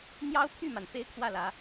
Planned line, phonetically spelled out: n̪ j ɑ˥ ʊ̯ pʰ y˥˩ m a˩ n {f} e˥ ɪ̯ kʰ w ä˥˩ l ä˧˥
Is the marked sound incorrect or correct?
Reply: correct